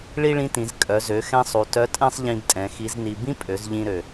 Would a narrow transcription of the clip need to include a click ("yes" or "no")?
no